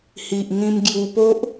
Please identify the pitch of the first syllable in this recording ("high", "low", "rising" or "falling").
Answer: low